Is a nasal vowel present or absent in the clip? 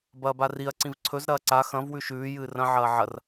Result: present